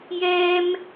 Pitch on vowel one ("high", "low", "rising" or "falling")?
high